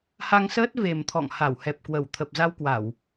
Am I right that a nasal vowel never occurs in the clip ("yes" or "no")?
yes